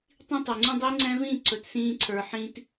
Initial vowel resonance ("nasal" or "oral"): nasal